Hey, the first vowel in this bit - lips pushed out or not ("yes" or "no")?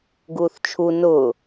yes